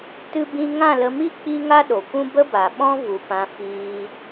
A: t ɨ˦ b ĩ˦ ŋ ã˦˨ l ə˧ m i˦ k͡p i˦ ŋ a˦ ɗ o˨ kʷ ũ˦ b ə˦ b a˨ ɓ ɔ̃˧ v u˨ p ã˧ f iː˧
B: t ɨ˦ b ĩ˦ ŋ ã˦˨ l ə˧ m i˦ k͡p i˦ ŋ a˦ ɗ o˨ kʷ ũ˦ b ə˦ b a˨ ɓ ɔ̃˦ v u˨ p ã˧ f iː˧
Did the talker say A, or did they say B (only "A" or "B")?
B